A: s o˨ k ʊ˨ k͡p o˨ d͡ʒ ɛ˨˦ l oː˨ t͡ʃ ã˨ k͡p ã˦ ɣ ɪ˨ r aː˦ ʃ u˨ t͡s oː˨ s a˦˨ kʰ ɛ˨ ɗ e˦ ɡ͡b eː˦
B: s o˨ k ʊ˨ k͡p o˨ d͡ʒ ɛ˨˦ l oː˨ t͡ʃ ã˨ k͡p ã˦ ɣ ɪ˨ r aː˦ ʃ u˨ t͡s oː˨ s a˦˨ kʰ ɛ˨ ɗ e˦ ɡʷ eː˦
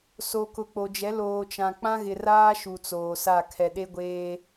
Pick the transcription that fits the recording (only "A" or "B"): B